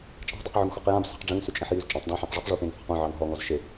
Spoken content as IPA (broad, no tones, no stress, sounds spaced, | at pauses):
t͡ʃʼ ɑ̤ dˤ ʉ q ʕ u ŋ x ɔ q j ã b s ɑ̤ q ɖ͡ʐ ə̃ ŋ s ʉ t͡ʃʼ ẽ ħ j ʉ z t͡ʃʼ ẽ tˤ dˤ ẽ ħ ã q ʐ ʉ q ʐ u p ẽ ŋ f ɑ̤ q ũ ʕ ɑ ŋ ɦ ɔ ŋ ɔ z ʃ e